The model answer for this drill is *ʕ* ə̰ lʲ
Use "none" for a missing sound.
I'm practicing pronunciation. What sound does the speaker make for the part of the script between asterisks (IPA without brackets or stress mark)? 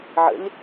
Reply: ʕ